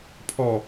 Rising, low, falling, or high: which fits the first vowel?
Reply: low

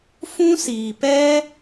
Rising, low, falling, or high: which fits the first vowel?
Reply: high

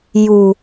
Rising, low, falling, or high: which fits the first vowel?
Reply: low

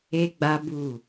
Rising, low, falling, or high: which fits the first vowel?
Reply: high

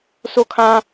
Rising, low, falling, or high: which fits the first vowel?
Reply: falling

